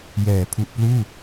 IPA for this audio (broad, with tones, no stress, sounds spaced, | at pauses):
j ɛː˩˦ pʰ u˨˩ ʔ p l uː˥˩